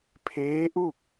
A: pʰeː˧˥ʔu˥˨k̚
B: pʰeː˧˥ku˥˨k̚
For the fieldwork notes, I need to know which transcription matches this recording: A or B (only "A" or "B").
A